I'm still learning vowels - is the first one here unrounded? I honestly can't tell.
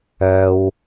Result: no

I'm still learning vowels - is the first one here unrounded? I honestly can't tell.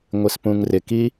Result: yes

